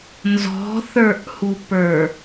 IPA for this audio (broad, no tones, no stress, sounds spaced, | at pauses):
n z ɔ̤ θ ə˞ ʔ h u p ə˞